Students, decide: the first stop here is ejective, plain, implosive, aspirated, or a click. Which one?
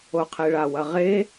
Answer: aspirated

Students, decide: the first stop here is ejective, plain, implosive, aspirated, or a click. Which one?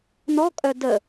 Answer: ejective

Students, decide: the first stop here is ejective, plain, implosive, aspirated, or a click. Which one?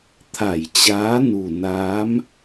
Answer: aspirated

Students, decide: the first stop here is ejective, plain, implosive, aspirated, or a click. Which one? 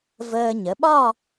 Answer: implosive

